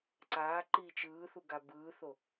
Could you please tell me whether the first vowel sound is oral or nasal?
oral